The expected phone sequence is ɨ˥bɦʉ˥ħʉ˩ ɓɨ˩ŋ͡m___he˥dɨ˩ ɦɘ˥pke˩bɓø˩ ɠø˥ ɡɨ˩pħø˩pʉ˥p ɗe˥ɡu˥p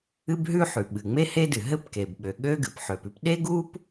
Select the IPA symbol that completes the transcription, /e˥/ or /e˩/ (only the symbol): e˥